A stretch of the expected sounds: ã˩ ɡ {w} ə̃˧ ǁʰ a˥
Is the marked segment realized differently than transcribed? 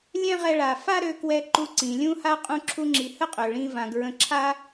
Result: yes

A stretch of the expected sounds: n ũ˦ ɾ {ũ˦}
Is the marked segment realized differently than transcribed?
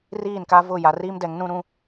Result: no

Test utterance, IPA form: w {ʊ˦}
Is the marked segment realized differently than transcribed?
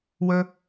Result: yes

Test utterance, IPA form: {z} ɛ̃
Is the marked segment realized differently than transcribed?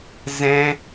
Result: no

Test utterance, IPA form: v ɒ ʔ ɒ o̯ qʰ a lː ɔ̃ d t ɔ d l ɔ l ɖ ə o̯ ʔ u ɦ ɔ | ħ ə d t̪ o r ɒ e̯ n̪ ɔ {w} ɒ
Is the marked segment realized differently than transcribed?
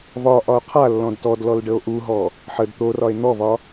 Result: yes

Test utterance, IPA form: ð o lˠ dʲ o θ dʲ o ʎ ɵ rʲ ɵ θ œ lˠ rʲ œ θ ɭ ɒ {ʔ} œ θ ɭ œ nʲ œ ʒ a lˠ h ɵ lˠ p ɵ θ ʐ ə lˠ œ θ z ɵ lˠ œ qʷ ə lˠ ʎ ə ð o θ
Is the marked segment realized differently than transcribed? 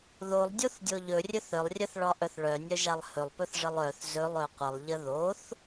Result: no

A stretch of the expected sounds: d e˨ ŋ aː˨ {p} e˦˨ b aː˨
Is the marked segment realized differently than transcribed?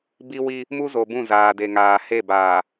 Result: yes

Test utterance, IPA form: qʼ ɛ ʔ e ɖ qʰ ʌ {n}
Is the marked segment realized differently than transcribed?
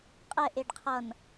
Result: no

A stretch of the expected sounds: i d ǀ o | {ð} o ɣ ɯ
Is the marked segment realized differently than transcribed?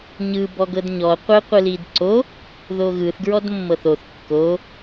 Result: no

